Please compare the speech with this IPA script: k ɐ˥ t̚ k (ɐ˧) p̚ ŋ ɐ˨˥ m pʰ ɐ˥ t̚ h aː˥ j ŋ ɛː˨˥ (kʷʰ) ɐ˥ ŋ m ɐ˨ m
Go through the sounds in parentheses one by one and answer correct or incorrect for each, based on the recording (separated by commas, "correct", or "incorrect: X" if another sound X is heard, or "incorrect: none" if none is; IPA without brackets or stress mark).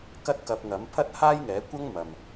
correct, incorrect: kʷ